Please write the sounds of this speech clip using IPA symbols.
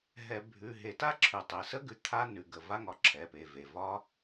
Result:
ɦ ɛ˧˩˧ bʱ ʉ˩˧˩ ɦ e˧˩˧ t a˥ ǁʰ ʉ˧˩˧ tˤ e˩˧˩ s ə˥ ɡ ʉ˩˧˩ t̪ʰ a˥ n ʉ˩˧˩ ɡ ə˩˧˩ v a˥ ŋ ɒ˧˩˧ ǁʰ ɛ˩˧˩ p e˩˧˩ v e˩˧˩ v ɒ˥

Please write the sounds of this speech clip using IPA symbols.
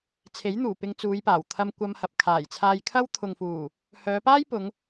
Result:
t͡sʰ e˨˥ j n̪ uː˨˩ p ɪ˧ ŋ t͡s uː˨˧ j p aː˨˩ w t̪ʰ ɐ˧ m kʷ ɐ˧ m h ɐ˨ p̚ kʰ aː˨˩ j t͡sʰ aː˧ j kʰ ɐ˥ w t̪ʰ ʊ˨ ŋ f uː˨˩ | h œː˨˧ p aː˥ j p ʊ˨˧ ŋ

